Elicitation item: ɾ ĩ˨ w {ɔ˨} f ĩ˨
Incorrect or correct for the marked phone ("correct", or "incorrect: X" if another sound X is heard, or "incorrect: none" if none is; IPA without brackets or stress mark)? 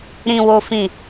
incorrect: o˨